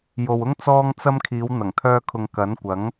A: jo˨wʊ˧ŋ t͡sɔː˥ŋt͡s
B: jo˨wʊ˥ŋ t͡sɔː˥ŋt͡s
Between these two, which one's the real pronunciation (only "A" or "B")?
B